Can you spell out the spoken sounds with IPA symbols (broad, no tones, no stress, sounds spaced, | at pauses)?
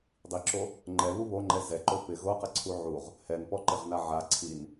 dˤ i ǁ o | ŋ͡ǃ ɛ β u β o ŋ͡ǃ ɛ z ɛ ǃ o p ɪ ɣ o q ɪ ǀʰ u ʕ u ʁ | h ɛ n p ɔ ǃ ɪ ʁ n a ʕ a ǀʰ i n